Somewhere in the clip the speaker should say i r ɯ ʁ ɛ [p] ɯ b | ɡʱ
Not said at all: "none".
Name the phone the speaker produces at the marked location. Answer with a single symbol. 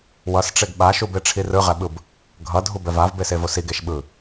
ɓ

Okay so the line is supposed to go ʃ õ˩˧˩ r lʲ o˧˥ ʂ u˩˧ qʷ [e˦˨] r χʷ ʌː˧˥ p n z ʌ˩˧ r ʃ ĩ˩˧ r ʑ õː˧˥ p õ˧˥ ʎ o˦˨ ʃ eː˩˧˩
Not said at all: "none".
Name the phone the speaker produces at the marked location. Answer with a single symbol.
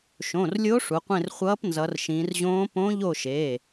ẽ˦˨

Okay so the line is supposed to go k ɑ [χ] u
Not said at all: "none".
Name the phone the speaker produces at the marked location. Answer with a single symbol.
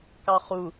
χ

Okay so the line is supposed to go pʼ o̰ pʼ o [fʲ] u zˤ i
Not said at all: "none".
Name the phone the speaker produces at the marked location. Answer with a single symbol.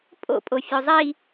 fʲ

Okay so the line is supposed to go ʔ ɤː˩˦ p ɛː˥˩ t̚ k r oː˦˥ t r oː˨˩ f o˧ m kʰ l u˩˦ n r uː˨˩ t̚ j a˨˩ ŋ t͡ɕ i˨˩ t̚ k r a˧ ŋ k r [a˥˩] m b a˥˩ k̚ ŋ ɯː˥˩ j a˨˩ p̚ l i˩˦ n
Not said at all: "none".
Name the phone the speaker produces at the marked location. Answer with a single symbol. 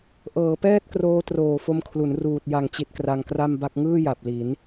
a˥˩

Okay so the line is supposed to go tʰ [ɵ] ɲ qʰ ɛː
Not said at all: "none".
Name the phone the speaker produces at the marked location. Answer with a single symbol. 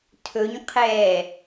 ɵ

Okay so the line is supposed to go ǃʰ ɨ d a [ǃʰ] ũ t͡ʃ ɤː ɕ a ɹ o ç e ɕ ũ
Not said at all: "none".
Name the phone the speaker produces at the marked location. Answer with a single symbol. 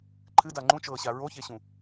ŋ͡ǃ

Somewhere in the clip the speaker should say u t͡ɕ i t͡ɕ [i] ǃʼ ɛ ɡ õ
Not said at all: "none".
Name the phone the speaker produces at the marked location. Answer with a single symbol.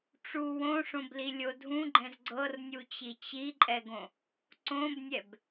i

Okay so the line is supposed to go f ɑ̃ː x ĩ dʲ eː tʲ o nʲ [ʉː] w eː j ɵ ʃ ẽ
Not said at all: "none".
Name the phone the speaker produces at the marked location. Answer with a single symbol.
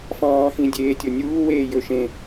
uː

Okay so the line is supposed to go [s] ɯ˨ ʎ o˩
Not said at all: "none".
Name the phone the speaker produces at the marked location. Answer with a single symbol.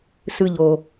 s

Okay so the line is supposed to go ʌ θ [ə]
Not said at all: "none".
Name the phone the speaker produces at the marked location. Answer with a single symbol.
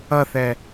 ɛ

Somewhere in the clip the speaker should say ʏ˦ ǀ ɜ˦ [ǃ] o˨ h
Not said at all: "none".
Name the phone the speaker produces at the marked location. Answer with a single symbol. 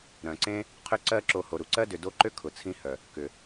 ǁ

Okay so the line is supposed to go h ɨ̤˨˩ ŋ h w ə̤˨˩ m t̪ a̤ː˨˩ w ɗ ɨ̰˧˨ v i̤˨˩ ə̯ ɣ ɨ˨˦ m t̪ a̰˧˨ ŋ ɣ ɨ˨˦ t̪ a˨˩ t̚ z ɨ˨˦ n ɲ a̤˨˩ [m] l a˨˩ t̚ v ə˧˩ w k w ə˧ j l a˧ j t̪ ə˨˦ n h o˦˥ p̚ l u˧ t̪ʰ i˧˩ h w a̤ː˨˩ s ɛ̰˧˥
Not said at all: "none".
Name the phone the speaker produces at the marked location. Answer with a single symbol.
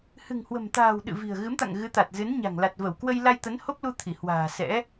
ŋ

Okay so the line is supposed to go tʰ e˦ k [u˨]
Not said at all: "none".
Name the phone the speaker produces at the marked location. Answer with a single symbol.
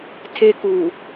u˨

